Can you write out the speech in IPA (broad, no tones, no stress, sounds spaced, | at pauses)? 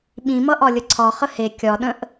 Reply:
ɓ ĩ m ʌ ʔ ɒ lʲ ə ǀʰ ɒ χ ə h e kʲ ɒ ɗ ə̃ ʔ